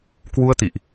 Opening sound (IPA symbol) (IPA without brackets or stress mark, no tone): k